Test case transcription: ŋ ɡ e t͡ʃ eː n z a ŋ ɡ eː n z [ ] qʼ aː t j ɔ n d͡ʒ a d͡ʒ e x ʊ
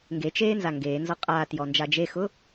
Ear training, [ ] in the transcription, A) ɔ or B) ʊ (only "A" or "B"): A